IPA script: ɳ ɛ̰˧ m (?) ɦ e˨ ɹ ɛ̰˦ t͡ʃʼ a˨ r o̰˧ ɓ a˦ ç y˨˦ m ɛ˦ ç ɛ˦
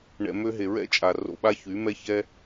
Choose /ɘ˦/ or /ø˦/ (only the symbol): ø˦